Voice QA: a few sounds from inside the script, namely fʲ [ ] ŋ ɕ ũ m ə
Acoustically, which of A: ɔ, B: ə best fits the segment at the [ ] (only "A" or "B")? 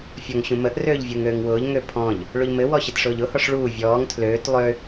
A